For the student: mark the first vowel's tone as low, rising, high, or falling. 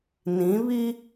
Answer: rising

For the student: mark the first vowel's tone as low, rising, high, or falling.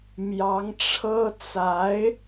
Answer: rising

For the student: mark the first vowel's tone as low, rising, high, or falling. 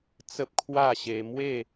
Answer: high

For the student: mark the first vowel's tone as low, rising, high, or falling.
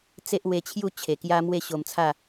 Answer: high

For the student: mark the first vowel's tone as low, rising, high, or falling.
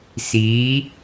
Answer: rising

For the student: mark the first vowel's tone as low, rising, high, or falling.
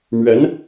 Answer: rising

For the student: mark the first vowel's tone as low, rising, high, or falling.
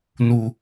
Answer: low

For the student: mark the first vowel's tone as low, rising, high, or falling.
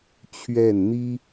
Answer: falling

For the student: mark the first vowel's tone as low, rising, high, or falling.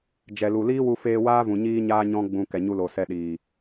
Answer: low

